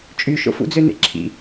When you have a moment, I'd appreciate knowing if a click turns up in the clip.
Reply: yes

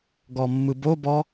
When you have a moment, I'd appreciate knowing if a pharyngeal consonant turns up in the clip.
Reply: no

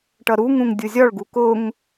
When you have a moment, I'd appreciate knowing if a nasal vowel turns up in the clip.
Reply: yes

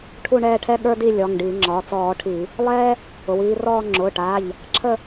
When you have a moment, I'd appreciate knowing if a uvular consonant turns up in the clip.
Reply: no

